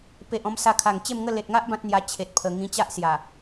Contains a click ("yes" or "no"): no